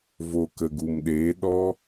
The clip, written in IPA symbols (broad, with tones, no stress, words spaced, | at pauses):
vo˨ kə˨ɡu˨mɗeː˨˦ ɗɔ˦